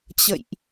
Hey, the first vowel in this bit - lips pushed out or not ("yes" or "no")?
no